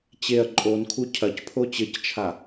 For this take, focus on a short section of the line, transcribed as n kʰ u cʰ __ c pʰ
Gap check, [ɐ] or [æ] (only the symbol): ɐ